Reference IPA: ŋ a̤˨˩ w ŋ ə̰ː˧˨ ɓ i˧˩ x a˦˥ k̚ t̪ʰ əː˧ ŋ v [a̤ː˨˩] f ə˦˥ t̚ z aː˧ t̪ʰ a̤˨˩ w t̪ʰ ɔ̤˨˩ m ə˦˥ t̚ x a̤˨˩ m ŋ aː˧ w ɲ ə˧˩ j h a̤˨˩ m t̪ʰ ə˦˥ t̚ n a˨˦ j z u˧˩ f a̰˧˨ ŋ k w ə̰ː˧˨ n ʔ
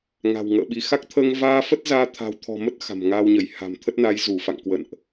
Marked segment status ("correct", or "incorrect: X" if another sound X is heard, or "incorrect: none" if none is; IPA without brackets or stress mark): incorrect: aː˧